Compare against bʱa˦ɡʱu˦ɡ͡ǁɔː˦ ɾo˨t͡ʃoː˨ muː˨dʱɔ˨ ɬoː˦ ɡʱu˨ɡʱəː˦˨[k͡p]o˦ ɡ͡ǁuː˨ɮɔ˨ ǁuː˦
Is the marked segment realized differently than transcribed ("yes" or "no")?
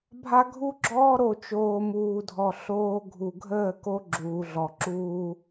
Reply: yes